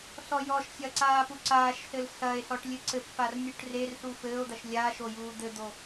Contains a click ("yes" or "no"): yes